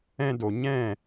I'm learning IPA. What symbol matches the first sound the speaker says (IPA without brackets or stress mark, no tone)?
ɛ̃